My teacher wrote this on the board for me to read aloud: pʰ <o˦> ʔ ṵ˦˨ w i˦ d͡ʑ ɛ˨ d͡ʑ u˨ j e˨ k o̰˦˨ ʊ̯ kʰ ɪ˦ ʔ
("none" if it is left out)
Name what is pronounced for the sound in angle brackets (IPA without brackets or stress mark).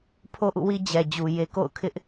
o˦